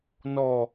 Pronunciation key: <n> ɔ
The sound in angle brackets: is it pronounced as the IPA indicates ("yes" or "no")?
yes